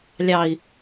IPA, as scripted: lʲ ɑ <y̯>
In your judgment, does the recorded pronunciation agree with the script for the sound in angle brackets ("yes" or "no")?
no